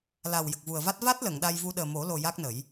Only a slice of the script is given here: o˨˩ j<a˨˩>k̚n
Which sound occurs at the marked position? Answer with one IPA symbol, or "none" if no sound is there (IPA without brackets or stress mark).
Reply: a˦˥